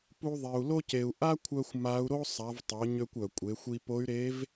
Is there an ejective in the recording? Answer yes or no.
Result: yes